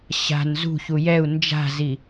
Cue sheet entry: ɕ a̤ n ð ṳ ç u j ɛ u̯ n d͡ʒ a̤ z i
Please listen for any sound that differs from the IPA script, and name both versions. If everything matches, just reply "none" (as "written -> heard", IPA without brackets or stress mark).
ð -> z